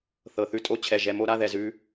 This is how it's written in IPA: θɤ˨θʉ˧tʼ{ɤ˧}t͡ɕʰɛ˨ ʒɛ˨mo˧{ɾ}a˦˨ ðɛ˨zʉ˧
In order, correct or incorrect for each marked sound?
incorrect, correct

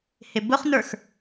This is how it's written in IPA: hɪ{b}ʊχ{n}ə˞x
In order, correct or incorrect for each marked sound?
correct, correct

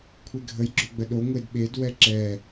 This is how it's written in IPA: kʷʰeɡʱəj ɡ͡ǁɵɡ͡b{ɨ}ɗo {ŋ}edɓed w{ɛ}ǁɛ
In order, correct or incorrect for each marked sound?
incorrect, incorrect, correct

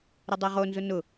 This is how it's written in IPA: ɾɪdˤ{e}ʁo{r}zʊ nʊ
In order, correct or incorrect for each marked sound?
correct, incorrect

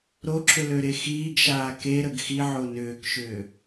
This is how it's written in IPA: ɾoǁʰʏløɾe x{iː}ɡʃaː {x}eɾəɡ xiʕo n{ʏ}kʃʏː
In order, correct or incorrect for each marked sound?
correct, incorrect, incorrect

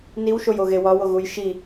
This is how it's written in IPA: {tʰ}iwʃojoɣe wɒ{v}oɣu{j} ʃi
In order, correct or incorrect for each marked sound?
incorrect, incorrect, correct

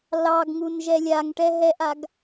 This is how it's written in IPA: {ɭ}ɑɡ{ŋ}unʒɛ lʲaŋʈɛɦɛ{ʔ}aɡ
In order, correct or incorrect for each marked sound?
incorrect, correct, correct

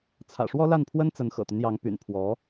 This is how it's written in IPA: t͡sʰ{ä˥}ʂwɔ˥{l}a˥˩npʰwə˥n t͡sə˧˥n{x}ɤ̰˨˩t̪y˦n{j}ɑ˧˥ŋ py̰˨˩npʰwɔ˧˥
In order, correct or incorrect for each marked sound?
incorrect, correct, correct, correct

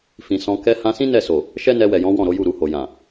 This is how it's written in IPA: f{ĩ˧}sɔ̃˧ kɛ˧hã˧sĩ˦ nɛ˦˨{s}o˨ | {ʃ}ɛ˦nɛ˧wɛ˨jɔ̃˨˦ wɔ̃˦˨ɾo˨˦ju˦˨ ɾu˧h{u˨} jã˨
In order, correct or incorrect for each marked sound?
incorrect, correct, correct, incorrect

